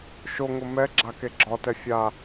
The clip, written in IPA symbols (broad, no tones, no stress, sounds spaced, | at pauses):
ʃ o ŋ ʊ m ɛ ɡ͡ǁ a k e ɡ͡ǁ ɒ t ɛ fʲ a